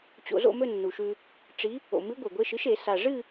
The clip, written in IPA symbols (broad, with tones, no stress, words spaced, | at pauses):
t͡ɕo̰˧zo̰˥˧mɵ˥˧ nːu˨˩ʃʉ˧ | ʈ͡ʂi˧˥ | o̰˨˩ mɨ˧˥ ɡʷe˨˩ɡʷe˧˥˧ʃɨ˧˥ʃe˨˩˦ sa˨˩ ʐɨ˥˧